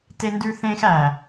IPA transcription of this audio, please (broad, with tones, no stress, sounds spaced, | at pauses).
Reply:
t e˧ n d ʉ˧ θ ẽː˥ x æ˩